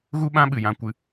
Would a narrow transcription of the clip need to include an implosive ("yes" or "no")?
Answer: yes